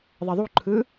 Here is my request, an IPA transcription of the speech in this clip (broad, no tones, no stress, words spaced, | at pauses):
ðˤɛðˤuǃʰɯ